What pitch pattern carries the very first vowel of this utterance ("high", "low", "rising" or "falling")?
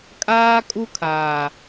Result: high